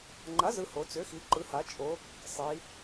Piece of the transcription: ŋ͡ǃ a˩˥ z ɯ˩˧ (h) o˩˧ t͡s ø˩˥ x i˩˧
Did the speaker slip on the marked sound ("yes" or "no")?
no